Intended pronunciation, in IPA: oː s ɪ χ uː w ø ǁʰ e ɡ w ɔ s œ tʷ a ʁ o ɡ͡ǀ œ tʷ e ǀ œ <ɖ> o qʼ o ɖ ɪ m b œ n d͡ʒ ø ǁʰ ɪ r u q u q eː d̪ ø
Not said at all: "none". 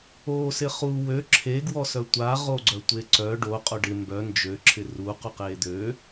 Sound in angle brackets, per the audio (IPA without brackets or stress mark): ɖ